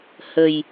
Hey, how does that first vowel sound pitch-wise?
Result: low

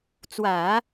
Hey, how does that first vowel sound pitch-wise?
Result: low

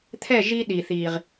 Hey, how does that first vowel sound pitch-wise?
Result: falling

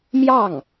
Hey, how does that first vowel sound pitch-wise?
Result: falling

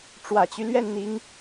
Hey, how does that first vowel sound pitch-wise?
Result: low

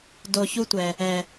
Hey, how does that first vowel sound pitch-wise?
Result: low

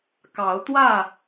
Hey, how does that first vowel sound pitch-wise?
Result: rising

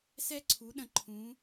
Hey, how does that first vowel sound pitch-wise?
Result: high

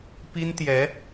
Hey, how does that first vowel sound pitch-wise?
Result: high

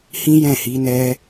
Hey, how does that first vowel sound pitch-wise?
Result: high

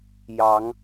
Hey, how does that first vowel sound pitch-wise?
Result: rising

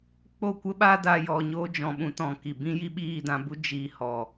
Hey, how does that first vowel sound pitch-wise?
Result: falling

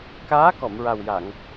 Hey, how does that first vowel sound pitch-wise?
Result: rising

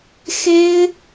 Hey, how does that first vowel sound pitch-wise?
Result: high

